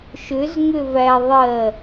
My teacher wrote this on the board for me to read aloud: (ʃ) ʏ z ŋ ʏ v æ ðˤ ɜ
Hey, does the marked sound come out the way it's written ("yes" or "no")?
yes